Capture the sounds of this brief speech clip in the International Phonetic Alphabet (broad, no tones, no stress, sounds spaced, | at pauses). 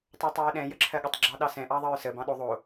tˤ o tˤ ɹ ə ɗ ɛ̃ j ə ǁʰ ɜ ɠ ə tˤ ɡ͡ǁ ɑ ɗ ɑ s ɛ̃ ʔ ɑ ðˤ ʌ ɹ s ə b ɑ̃ ɗ o ðˤ o